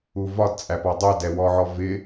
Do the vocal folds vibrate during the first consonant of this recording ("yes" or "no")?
yes